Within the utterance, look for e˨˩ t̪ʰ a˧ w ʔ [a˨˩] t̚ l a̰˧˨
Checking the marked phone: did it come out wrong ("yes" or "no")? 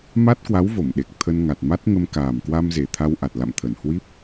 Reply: no